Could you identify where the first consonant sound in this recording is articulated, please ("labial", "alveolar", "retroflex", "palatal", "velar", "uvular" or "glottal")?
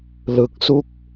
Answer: alveolar